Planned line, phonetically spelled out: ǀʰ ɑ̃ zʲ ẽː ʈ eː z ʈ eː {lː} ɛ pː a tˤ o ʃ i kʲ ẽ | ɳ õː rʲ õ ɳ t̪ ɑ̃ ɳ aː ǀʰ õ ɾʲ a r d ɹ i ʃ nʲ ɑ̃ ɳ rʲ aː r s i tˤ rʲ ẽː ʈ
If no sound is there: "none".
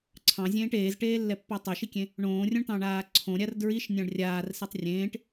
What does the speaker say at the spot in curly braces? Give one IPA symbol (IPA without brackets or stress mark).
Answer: lː